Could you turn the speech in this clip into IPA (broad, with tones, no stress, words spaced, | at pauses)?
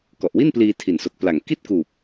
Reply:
kɔ˨˩ʔwi˥˩npliː˧ tʰi˨˩nso˨˩k̚pla˨˩ŋ ki˥˩t̚kuː˨˩p̚